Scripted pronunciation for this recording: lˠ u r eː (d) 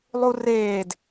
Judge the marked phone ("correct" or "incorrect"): correct